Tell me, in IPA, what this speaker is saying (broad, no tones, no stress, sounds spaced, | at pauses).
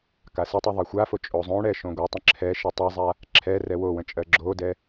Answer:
k a s ə tˤ o ðˤ ɜ xʷ a f o t͡ʃʼ o zˤ õ ɽ ɛ ʃ õ ɡʷ a tˤ ə̃ ǁʰ ɛ ʃ ə tˤ a zˤ a | ǁʰ ɛ r ɛ w o w ə̃ t͡ʃʼ ɜ ɡ͡ǁ o d ɛ